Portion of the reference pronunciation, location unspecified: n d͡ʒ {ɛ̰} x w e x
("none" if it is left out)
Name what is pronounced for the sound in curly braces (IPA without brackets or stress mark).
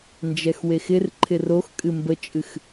ɛ